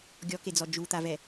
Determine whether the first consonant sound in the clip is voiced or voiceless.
voiced